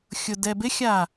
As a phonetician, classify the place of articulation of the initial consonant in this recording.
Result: velar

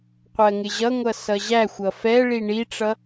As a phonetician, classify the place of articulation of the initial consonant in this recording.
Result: uvular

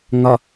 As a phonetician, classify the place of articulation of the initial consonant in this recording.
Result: velar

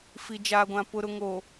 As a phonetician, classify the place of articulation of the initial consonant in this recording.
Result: labial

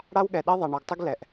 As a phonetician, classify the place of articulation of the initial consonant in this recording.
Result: retroflex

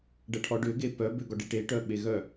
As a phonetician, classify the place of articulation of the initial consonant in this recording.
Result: retroflex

